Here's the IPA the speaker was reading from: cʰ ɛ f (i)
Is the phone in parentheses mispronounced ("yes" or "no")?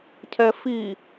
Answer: no